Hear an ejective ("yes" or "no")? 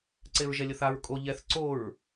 yes